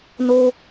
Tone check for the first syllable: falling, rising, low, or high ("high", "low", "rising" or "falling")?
high